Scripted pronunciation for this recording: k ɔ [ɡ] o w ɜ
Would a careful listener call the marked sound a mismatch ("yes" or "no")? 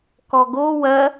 no